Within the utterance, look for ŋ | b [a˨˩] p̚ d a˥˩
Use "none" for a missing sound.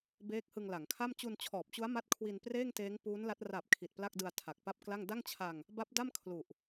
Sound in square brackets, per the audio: a˦˥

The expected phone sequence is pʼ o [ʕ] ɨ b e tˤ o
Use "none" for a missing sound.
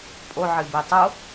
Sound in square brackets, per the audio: ʕ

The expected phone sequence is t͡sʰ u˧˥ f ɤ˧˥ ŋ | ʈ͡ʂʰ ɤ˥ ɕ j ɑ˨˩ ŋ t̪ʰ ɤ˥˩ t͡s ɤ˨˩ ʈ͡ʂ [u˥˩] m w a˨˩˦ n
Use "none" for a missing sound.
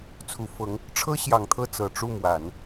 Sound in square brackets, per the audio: u˥˩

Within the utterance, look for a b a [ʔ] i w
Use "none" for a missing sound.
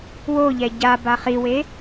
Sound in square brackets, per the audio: χ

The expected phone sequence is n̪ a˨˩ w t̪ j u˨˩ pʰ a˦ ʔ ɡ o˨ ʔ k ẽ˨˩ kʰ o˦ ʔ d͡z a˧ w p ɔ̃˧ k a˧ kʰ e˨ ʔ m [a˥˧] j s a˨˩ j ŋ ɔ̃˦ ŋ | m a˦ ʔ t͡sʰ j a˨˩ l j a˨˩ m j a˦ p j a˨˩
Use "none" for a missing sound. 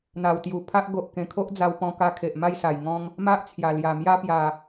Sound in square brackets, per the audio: a˥˧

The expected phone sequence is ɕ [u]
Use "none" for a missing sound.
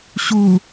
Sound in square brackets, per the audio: u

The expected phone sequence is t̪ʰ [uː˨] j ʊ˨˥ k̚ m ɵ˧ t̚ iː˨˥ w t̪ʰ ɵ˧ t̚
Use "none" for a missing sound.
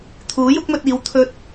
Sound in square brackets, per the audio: uː˨˥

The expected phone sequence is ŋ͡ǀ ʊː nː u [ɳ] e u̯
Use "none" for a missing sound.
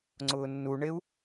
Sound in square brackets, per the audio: ɳ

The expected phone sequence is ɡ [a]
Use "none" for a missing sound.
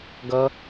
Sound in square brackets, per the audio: ʌ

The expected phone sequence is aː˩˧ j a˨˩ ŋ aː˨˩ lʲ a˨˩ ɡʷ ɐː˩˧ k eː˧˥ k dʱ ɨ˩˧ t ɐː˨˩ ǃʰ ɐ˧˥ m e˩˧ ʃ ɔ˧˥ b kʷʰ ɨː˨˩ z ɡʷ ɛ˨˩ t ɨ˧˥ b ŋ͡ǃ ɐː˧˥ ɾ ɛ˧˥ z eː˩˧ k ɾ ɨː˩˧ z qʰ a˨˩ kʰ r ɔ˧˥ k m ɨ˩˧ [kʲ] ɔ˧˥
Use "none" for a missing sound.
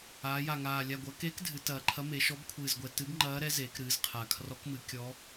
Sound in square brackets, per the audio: kʲ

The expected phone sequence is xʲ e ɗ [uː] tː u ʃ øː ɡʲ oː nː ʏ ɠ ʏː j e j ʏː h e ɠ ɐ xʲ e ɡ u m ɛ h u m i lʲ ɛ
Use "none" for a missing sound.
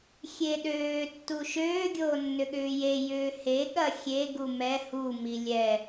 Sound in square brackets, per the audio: øː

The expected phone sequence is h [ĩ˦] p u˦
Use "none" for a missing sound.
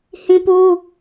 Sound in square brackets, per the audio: ĩ˦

